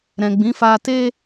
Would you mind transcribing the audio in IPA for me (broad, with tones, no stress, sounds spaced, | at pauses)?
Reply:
ɾ ɛ̃˨ ɡ͡b ĩ˨˦ f a˧ t e˦